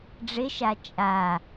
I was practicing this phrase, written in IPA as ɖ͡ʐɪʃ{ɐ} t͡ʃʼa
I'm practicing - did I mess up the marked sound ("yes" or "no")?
yes